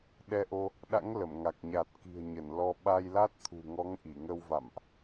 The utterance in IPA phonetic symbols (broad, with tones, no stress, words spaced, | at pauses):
ɗɛ˧ʔo˧ | ɗa̰˧˥ŋlə˧˩mŋa˨˩k̚ɲa˨˩t̚ ki̤˨˩ə̯ɲə˧˩n lɔ˧ ɓa˧jla˦˥t̚t̪ʰṳ˨˩ŋɔ˨˦ŋ ʔi˧˩ŋə˧wva̰˧˨mʔ